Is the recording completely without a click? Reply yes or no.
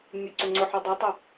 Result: no